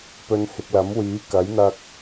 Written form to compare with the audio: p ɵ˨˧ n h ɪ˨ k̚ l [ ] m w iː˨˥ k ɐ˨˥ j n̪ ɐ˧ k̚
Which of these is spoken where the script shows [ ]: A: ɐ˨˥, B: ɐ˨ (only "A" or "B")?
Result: A